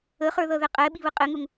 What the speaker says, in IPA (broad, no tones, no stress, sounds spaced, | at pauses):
ə χ ə˞ ð ʌ ð ɛ qʼ ɛ ɓ i β ə qʼ ɪ ŋ ʊ ŋ